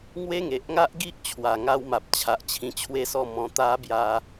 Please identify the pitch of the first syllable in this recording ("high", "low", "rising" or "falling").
high